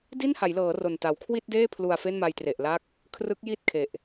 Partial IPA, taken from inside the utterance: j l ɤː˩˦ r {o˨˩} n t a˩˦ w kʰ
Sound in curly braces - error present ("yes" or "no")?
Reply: no